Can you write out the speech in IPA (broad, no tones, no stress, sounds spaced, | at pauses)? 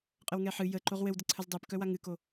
qʼ ə w ŋ ɛ ħ ɨ j ə ǃ o ʁ w ɘ w d ə ǀʰ ə z dˤ ɛ p k œ w a ŋ ɨ k o